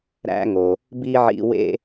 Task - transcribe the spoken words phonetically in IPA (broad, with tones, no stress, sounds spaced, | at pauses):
ɾ æ̰˥ ŋ o˩ | b i˥ ʕ ḭ˧ w ḛ˥